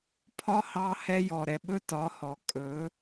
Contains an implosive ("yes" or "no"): yes